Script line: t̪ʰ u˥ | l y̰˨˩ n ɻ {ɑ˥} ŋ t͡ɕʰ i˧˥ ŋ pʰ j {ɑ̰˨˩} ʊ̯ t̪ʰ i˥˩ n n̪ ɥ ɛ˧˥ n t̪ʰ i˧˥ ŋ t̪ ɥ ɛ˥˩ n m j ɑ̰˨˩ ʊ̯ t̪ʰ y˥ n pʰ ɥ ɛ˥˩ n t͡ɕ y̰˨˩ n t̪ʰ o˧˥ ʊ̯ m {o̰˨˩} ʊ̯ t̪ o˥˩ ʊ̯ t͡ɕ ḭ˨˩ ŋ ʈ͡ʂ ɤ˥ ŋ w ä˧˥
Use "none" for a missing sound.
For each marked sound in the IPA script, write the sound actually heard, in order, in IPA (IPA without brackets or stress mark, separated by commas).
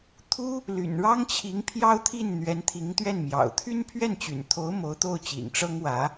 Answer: ɑ˥, ɑ˥, o˧˥